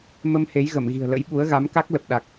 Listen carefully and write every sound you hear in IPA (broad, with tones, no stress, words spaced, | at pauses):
mə˧m he˨˦jɣə˧˩mɣi̤˨˩ə̯ lə̰˧˥jɓu˨˦ə̯ ɣa˨˦mka˦˥k̚ lə˨˩p̚ɗa˨˩k̚